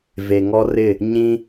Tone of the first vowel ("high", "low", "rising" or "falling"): low